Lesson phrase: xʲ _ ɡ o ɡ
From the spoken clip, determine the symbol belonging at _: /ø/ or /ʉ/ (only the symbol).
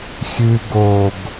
ʉ